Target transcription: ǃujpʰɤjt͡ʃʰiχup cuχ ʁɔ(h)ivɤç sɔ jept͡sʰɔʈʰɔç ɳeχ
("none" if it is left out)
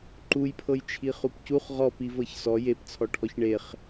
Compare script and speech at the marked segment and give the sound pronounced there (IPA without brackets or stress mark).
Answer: p